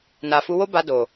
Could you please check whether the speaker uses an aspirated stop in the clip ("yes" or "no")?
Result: no